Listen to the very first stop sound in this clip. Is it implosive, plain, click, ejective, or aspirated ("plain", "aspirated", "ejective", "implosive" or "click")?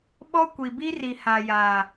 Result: implosive